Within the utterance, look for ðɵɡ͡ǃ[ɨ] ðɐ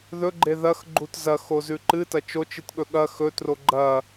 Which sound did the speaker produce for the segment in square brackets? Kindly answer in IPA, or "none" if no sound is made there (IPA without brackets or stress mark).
e